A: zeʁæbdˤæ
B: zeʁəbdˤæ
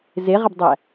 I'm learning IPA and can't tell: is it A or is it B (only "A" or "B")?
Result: B